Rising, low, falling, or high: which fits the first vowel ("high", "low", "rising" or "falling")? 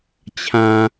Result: low